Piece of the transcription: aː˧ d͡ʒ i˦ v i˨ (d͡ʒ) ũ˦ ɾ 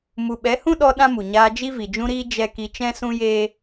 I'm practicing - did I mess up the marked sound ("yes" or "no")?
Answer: no